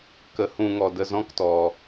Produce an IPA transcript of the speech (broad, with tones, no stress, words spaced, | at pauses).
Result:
kə˨˦hũ˧ŋɔ˨ də˧zɔ̃˦ktɔ˨